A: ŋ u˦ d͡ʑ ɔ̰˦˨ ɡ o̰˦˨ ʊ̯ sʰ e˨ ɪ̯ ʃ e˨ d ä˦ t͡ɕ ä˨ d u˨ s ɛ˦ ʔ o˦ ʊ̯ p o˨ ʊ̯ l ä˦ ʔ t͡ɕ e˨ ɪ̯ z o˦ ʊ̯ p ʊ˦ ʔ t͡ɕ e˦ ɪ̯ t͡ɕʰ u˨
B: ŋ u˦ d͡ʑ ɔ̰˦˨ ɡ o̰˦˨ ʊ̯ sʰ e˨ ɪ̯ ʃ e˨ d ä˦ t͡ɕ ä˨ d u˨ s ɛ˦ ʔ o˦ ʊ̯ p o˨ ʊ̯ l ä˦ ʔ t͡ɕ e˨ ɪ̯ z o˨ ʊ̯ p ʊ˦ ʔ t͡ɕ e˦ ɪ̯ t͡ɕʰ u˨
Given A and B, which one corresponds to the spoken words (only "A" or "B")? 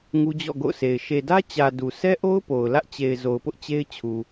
B